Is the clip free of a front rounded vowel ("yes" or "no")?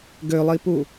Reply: no